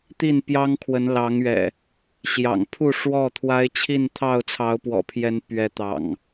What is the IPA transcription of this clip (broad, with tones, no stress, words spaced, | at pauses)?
t̪i˥˨n pjɑ˦ŋkʰwə˨˦n lɑ˨˦ŋɥɛ̰˨˩ | ɕjɑ̰˨˩ŋpʰu˥˨ʂwɔ˥˨ t̪ʰwa˦ɪ̯t͡ɕʰi˥˨n t̪ʰɑ˥˨ʊ̯t͡sʰɑ˨˦ʊ̯pwɔ̰˨˩pʰjɛ˨˦n pɥɛ˨˦ t̪ɑ̰˨˩ŋ